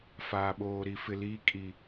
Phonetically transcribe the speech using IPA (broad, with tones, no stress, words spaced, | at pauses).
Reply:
faː˨ɓoː˨ ɾi˨fɪ˨ liː˦kʼi˨